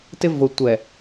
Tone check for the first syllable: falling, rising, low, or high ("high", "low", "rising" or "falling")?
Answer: high